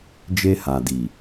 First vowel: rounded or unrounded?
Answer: unrounded